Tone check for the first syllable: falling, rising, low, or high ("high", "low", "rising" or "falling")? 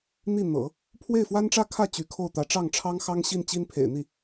falling